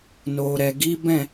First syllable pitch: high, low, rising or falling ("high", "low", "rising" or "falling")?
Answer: low